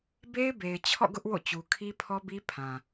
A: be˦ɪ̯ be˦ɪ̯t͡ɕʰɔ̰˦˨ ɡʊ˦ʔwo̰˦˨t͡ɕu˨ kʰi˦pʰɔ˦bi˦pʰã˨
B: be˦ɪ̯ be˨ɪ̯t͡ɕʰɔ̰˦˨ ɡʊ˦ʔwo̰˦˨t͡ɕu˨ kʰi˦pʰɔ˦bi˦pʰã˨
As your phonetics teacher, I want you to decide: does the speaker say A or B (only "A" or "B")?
B